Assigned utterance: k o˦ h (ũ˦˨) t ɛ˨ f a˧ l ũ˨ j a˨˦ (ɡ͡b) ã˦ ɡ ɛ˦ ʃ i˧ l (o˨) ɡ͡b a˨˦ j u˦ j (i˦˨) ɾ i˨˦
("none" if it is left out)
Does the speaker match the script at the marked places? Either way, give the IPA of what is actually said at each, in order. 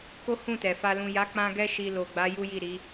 ũ˦˨, k͡p, o˨, i˦˨

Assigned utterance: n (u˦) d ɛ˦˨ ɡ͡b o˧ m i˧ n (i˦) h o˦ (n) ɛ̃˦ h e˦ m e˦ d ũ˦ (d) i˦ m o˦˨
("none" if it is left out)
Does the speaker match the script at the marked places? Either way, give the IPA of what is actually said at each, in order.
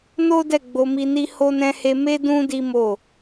o˦, i˦, n, d

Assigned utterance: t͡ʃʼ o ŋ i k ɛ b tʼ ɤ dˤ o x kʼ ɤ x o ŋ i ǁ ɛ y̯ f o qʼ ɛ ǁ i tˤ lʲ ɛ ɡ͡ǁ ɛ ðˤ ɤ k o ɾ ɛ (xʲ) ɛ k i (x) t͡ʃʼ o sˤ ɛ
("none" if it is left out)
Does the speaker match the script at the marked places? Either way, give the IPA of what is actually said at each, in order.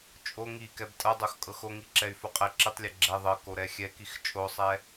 xʲ, x

